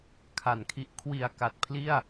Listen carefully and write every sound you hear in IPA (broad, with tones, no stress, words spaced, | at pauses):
kʰa˨˩nkʰi˦˥ʔ kʰwi˨˩a̯ka˨˩t̚pʰli˥˩a̯